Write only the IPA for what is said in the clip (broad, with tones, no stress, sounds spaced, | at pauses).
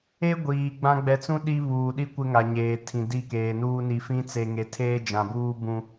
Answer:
e˦ ɡʷ iː˨ ɡ͡b ã˦ ɡ͡b ɛ˨ t͡s ũ˦ ɗ i˦ β uː˨ ɗ i˦ kʷ ɪ˦ ŋ a˨ ɲ eː˨ tʰ ĩ˨ d i˦˨ k eː˨ n uː˦ n i˨ f ĩ˦ t͡s e˨ ŋ e˨ tʰ eː˦ d͡ʒ ã˨ b uː˦ b ũ˦